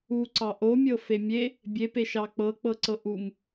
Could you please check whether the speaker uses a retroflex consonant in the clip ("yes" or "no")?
no